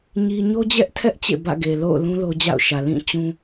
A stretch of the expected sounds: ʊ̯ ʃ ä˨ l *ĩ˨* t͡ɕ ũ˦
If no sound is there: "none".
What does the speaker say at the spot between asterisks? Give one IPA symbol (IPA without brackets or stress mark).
ĩ˦˨